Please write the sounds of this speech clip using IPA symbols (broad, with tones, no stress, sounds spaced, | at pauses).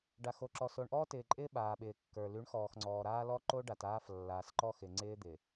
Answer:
ɖ a˨ x o˨ ǁ ɔ˨ s o˨ ɳ ʔ ɔː˦ t ɪː˨ ǃʼ ɪː˦ ɓ aː˨ ɓ ɪː˨ kː ə˞˨ l y˨˦ ɳ x ɔː˨ x ŋ͡ǀ ɔː˨ ɾ aː˦ l ɔ˦ ǃ o˦ ɖ a˨ t aː˦ f lː aː˨ s ǃ ɔ˦ x ɪ˨ ŋ͡ǀ ɪː˦ d̪ ɪ˨